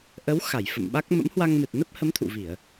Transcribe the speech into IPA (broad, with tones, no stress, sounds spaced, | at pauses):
ʔ ə˨˦ w x a˧˩ j f ə̰˧˨ m ɓ a˦˥ k̚ m ə̰˧˥ m h w a˧ ŋ m ɨ˨˩ t̚ n ə˦˥ p̚ h ə˨˦ m t̪ʰ ṵ˧˨ v i˧˩˨ ə̯